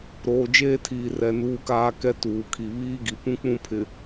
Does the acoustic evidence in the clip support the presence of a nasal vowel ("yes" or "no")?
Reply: yes